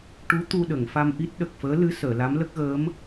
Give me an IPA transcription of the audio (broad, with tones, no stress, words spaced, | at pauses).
ʈu˧˥ t̪u˧ɗə˨˩˨ŋ fa˧mʔi˦˥t̚ɗə˨˩k̚ fəː˧˥lɨ˧˥ səː˨˩˨la˧˥mlə˦˥k̚ɣəː˧˥m